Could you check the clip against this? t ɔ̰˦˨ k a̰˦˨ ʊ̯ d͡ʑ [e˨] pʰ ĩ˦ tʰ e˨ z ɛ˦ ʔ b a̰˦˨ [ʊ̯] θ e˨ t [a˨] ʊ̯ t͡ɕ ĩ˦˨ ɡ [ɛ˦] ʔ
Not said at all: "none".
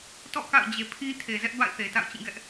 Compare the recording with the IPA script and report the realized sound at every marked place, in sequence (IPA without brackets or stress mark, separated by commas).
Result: e˨, ɪ̯, a̰˦˨, ɛ˦